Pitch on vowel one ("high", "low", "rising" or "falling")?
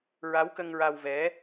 rising